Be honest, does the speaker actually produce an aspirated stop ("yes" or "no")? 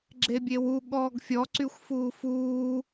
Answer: no